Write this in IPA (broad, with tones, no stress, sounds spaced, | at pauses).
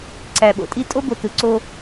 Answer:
ǀ æ˨ ɓ o̰˨ tʼ i˦ tʼ o˦ b o˨ t ɯ˨ ǀ o˦